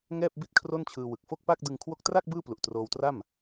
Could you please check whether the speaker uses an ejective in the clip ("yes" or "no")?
no